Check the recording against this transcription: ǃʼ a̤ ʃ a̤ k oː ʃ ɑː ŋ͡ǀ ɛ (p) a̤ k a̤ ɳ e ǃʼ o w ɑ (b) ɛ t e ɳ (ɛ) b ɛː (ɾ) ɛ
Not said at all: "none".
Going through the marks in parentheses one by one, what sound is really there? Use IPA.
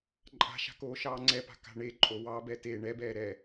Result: p, b, ɛ, ɾ

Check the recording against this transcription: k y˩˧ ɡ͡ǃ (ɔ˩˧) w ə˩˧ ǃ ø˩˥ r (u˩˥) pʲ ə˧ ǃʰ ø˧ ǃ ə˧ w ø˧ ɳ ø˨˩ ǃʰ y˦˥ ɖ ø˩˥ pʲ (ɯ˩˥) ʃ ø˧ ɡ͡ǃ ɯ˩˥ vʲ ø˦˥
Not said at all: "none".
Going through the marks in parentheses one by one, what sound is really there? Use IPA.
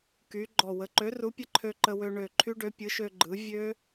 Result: ɔ˨˩, u˩˥, ɯ˩˥

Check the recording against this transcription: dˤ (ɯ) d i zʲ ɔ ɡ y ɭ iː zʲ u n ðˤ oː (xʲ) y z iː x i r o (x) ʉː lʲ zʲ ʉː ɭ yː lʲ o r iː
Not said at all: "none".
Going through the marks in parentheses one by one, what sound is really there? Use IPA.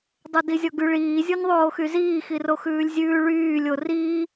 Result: u, x, x

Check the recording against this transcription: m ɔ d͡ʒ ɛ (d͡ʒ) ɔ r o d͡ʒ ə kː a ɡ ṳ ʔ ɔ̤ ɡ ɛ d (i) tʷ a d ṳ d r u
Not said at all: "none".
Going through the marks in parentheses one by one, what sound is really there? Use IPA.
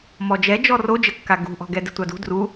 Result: d͡ʒ, ɪ

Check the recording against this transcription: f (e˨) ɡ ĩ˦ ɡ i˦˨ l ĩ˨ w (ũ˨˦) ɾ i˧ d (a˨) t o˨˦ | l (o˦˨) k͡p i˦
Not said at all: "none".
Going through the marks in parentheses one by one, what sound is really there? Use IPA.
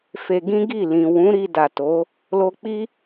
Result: e˧, ũ˨˦, a˨, o˧

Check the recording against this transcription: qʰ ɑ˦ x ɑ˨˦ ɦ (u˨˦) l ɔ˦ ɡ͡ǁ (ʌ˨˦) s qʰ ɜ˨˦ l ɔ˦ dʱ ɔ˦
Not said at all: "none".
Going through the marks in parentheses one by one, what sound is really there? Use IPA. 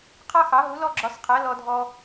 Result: u˨˦, ɒ˨˦

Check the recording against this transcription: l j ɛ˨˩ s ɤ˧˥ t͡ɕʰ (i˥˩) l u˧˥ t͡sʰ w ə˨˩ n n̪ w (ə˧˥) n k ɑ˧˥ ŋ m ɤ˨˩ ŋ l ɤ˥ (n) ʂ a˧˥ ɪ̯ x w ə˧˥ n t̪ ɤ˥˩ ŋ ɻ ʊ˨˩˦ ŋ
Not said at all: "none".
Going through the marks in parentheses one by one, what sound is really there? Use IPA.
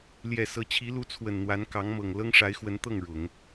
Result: i˧˥, a˧˥, ŋ

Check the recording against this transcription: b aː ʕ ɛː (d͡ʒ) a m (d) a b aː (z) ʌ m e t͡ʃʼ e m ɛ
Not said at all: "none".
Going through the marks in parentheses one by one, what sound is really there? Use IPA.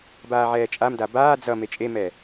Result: t͡ʃʼ, d, d͡z

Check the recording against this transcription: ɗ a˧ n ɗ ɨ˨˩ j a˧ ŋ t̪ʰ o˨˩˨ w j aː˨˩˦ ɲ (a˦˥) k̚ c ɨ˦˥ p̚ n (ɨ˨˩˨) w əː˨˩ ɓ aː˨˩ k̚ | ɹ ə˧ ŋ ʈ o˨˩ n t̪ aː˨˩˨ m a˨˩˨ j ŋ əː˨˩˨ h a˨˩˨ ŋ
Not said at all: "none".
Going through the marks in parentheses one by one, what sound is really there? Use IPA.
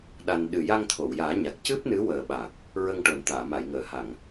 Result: a˨˩, ɨ˧˥

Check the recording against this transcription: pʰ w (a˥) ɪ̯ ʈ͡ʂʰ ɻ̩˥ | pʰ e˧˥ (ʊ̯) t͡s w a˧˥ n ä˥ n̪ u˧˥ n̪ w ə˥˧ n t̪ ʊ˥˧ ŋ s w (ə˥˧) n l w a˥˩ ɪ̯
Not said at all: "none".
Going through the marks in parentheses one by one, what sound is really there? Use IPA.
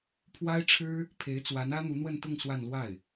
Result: a˥, ɪ̯, a˥˧

